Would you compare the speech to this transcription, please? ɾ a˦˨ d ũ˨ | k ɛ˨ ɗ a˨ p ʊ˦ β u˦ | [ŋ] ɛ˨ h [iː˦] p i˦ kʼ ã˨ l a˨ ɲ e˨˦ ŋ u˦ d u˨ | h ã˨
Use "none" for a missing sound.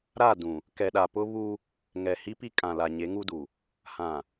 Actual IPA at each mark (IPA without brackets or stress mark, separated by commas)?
ŋ, i˦